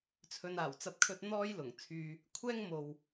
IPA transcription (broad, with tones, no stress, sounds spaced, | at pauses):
t͡sʰ ɵ˨ n aː˨˩ w t͡s ɐ˧ p̚ kʰ ɵ˧ t̚ n̪ ɔː˥ j l ʊ˨˩ ŋ t͡sʰ yː˧ | kʷʰ ɛː˥ ŋ m o˨ w